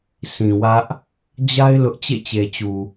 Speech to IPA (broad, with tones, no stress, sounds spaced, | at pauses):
s ĩ˨ w ä˦ ʔ | d͡ʑ a˦ ɪ̯ l ʊ˦ ʔ t͡ɕ ḛ˦˨ t͡ɕ e˨ t͡ɕ u˨